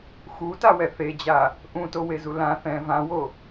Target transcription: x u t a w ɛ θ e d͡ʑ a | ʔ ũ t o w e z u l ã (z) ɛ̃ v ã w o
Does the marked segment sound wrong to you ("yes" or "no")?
yes